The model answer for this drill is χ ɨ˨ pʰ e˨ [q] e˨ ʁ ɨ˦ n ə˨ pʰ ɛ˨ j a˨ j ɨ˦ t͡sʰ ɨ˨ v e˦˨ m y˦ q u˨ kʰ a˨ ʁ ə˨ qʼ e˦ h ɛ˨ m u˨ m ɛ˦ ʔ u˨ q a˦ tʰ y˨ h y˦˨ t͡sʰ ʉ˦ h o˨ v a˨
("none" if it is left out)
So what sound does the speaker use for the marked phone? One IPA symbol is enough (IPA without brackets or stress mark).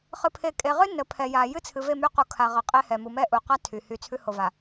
kʼ